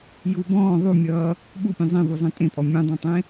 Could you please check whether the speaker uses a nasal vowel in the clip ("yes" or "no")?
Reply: yes